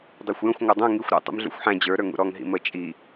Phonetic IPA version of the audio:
dˤ ə˞ xʷ j ə̃ xʷ ŋʷ ə˞ dˤ ũ ŋ i xʷ ɾ ṵ tˤ ṵ m ɮ ṵ xʷ ħ æ̃ d͡ʑ ə˞ ɾ ə˞ ŋ ṵ ɾ ɔ ŋ ɦ ḭ m ə t͡ʃʼ i

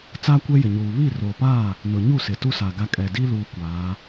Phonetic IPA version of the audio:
t͡s aː˦ kʷ ɛ˦ j ɪ˨ ɲ uː˨ β i˦˨ r oː˨ p aː˦˨ | n ʊ˨ ɲ u˦˨ s ɪ˨ t u˦ s a˨ ɡ a˦ kʼ ɛ˨ d i˦ l uː˦ kʷ aː˨˦

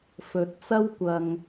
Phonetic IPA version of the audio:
f ɵ˨˥ t̚ t͡s ɐ˥ w kʷ ɐ˨ ŋ

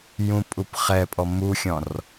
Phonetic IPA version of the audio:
j ũ pʼ u p χ ɛ pʼ ɔ m u xʲ ɔ̃ r

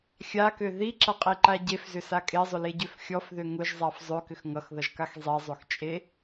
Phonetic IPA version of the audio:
xʲ a k ø ð i ǁ ʌ qʼ i ǃ a ɟ e f z ʏ s a kʼ e zˤ ʏ l e ɟ ø f xʲ ɔ f ð ø ŋ ʊ ʒ zˤ a f zˤ ø k ʏ x ŋ ʌ x ð ʌ ʒ k a x zˤ i zˤ ø x t͡ʃʼ e

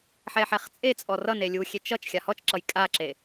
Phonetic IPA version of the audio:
ħ ɛ ħ ɛ χ t͡sʼ e t͡sʼ ɔ r ʌ n e lʲ u xʲ e t͡ʃ ʌ t͡ʃ xʲ a h ɔ t͡ʃ ǁ ʌ j kʼ a ǁ e

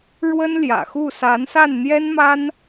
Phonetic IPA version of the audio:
ɻ w ə˥ n l j ä̰˨˩ x u˥˩ s a˧˥ n s a˥˩ n n̪ j ɛ˥ n m a˥ n

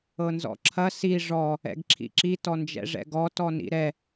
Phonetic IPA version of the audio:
ɤ n z ɔ̰ ǁʰ ɐ s i ʐ ɔ | ɛ̰ ɡ ǁʰ ḭ ǁ i t ɔ n d͡ʒ ɛ̰ ʐ ɛ̰ ɡ ɔ t ɔ n ḭ ɾ ɛ

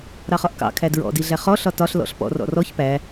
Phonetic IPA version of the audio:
ɾ ɑ χ ɒ ʔ k ɑ̰ kʰ æ d ɹ ɔ̰ d i ɮ æ χ ɔ ɬ ɒ t ɒ ɬ l ɔ̰ ɬ p ɔ̰ r ɔ̰ r ɔ ç p æ

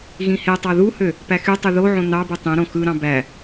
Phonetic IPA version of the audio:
ɣ ĩ h e tˤ ɑ ð u h ø | p æ x y tˤ y ð o ʕ õ n ɑ b ɯ tˤ ĩ ɾ õ x ɯ ɾ ɑ̃ b æ

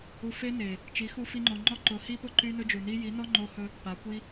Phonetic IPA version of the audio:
u˧ f e˦ n e˨ | t͡ʃ i˨˦ x u˧ f i˦ ŋ͡ǃ o˧ ŋ͡ǃ ɔ˦ ǃ ʊ˨˦ h i˦ p ʊ˦˨ ǃ y˦ n ɵ˦ d͡ʒ u˨ n i˦ j i˨˦ n ɔ˦ ŋ͡ǃ o˧ h ɵ˧ | p a˨˦ kʷ i˦

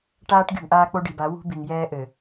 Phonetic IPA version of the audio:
ʈ aː˦ ʈ ɡʲ ṳ˨ ŋ ʔ aː˦ k͡p o˦ ɖ i˨ b a˨˦ w ṳ˦ b i˨ ŋ j ɛː˦ ʔ ɘ˨

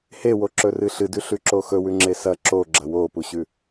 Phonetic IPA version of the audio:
h e w o ǁ ɵ r ɨ ɬ ɨ d ʉ ɬ ʉ ǁ o x ɵ w ʉ ŋ͡ǁ e s ɐ ǁ o ɡ͡ǁ ɐ w o p u ɕ ʉ

